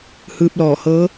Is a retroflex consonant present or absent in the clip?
absent